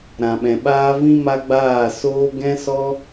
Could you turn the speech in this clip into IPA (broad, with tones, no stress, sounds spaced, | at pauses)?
ɾ ã˨ ɓ ɛ̃˨ ɓ aː˦ v ĩ˦ m a˦ ɡ͡b aː˦˨ s oː˦ ɡ ɛ̃˦ s ɔ˦